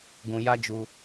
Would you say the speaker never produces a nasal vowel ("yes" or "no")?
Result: no